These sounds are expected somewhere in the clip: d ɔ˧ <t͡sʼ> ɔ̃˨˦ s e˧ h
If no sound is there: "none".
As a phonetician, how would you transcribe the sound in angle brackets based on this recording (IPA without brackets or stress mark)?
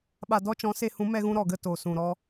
t͡ʃ